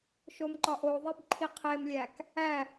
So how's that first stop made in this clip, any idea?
click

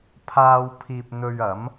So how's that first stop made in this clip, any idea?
aspirated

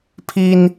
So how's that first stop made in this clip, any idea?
aspirated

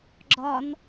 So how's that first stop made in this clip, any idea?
click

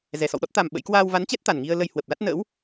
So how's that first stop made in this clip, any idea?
implosive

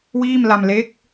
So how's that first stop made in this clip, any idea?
plain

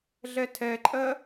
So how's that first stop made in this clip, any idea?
aspirated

